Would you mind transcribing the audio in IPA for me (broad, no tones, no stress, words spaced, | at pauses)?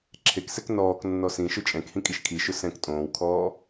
ǁʰeksɛk nɔːk nːɔsĩʃʊ t͡ʃʼɛ̃khĩ kʼiʃkʰiʃʊ sɛ̃k tʼõːwkʰɔː